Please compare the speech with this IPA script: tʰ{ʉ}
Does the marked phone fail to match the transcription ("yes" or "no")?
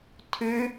no